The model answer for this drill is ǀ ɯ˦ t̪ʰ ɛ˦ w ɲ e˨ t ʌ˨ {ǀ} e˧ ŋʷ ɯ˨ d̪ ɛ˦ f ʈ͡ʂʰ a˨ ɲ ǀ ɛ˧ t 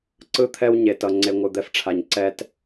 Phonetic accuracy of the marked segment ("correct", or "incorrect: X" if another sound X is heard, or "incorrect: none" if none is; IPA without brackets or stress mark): incorrect: ŋ͡ǀ